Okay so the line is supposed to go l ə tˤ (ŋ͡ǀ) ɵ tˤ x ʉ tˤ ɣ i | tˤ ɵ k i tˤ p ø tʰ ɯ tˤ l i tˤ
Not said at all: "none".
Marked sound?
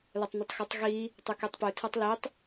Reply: n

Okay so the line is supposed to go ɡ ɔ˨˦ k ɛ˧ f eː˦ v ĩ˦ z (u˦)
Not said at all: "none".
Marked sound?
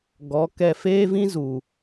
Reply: u˨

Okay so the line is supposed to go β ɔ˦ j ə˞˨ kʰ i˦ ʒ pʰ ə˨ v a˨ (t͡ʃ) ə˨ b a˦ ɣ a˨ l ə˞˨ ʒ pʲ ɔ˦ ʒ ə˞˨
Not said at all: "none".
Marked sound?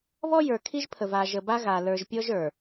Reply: ʒ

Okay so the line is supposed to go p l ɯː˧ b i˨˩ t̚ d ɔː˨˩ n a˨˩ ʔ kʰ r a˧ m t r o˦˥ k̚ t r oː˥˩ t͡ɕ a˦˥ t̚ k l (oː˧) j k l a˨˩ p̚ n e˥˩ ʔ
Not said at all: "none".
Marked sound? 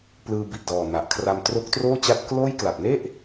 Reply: oː˥˩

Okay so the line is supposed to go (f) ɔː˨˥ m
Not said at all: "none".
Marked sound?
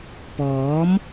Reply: p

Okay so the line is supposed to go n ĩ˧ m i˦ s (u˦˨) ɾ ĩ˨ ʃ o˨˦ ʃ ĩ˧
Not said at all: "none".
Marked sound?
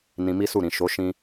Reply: u˦˨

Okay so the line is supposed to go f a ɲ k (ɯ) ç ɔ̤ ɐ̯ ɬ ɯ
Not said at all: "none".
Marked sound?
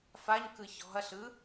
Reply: ɯ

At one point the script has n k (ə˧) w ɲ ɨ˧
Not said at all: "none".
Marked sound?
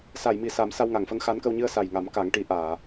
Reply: ə˧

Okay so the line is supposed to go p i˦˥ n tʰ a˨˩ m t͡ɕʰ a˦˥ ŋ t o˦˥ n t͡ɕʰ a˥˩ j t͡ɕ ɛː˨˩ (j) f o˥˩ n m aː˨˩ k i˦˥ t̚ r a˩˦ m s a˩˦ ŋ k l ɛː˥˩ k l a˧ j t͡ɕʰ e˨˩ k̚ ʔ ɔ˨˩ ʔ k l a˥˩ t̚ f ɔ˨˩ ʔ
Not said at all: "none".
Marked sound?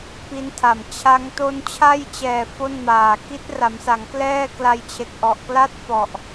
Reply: none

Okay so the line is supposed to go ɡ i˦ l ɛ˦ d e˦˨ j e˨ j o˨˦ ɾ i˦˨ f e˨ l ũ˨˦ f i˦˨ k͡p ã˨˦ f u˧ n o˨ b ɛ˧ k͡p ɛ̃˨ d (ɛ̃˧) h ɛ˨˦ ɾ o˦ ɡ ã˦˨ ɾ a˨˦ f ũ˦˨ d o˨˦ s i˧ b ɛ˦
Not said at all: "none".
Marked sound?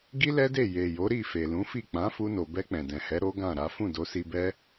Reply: ɛ̃˨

